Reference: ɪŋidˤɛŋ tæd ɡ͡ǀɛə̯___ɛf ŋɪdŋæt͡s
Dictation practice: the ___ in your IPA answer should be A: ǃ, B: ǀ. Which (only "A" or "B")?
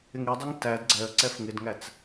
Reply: B